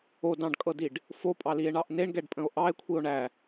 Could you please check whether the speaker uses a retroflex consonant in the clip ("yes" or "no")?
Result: yes